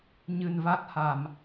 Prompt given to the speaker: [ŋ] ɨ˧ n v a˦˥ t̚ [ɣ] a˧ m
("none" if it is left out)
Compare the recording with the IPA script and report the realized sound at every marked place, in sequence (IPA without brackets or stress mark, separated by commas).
ɲ, h